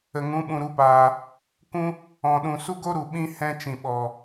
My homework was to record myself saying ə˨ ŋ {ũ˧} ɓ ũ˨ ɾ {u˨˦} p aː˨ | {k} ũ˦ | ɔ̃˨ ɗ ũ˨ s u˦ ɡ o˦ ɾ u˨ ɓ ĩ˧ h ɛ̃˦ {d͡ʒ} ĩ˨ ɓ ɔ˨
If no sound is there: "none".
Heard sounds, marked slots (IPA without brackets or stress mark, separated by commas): ũ˨˦, u˨˦, k, t͡ʃ